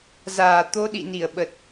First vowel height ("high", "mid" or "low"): low